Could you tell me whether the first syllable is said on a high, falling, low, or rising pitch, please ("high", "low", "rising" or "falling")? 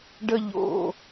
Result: high